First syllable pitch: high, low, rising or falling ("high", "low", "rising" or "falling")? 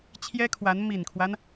high